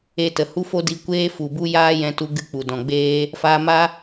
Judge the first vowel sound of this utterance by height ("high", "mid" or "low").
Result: mid